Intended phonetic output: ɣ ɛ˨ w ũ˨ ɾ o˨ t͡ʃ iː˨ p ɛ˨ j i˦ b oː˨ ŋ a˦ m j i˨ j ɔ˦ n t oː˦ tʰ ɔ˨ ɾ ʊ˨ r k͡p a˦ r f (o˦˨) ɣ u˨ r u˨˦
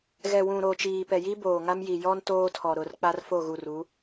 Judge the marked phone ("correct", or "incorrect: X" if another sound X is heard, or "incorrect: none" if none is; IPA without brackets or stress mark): correct